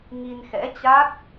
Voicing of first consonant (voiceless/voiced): voiced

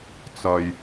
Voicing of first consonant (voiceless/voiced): voiceless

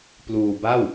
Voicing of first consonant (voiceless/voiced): voiceless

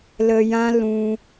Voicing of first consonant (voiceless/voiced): voiced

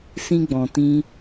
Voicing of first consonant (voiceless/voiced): voiceless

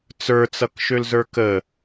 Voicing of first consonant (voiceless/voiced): voiceless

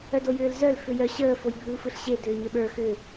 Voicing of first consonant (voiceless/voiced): voiced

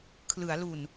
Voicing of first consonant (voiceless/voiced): voiceless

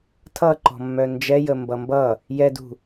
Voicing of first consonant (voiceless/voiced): voiceless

